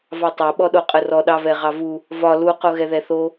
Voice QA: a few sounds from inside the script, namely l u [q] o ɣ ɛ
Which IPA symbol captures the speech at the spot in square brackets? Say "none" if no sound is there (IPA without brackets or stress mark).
q